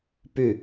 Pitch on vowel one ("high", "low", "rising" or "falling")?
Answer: falling